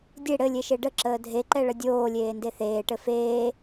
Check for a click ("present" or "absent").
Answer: present